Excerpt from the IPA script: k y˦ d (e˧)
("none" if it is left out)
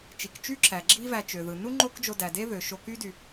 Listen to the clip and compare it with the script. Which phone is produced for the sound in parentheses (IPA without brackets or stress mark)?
y˧